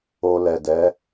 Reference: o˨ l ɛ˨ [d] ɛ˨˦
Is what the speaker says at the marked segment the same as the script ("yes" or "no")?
yes